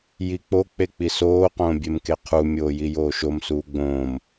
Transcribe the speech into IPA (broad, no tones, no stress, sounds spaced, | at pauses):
j i k͡p o k͡p e k͡p i s oː q õː bʲ e m k e qʰ u mʲ oː j i j oː ʃ o m s uː ɡ͡b õː m